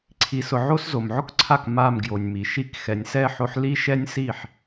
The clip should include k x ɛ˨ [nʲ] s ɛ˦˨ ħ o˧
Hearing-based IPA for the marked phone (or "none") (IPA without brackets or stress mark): nʲ